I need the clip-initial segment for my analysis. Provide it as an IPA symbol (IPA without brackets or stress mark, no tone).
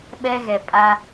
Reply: ɓ